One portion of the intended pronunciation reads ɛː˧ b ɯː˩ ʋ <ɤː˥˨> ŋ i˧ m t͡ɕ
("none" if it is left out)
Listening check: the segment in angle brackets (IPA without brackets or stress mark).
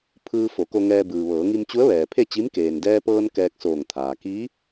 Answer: ɤː˩˧